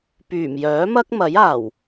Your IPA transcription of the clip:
p yː˨˩ m j œː˨˥ m ɐ˥ k̚ m ɐ˨˥ j aː˨˩ w

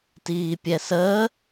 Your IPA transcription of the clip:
t iː pʲ ɛ s əː

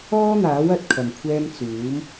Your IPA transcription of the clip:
ɔː˥ n̪ aː˨˥ w ɐ˨ t̚ kʰ ɐ˨˩ m kʷʰ ɛː˧ m t͡s uː˨˥ m

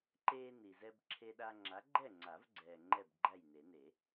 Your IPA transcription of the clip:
ǃ eː˦ n i˨ z ɛ˦ b ǁʰ e˦ ɗ a˦ ŋ͡ǁ a˨˥ ɡ͡ǃ ɛ˥˨ ŋ͡ǀ a˨˩˦ v ɡ͡ǀ ɛː˨ ŋ͡ǃ ɛ˥˨ b ɡ͡ǃ æ˥˨ j n e˨˩˦ n e˨˩˦

